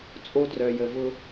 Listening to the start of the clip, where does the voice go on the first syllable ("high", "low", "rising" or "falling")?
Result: high